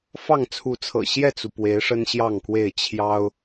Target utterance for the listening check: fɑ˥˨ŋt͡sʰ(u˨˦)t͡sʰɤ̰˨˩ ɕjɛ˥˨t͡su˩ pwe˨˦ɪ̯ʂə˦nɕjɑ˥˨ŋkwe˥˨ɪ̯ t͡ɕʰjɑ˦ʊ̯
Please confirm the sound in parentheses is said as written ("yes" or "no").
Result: yes